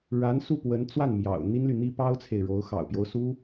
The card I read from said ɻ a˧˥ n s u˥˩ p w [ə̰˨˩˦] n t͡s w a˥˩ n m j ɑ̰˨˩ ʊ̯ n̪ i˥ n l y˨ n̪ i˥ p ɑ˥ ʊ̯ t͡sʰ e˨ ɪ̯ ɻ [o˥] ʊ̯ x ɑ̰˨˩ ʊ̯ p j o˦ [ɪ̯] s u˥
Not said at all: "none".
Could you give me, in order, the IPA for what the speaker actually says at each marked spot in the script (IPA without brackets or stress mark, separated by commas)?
ə˧˥, o˧˥, ʊ̯